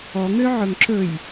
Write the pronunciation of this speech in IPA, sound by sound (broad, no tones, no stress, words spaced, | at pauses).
ɔ ŋøʕɵŋǁɵj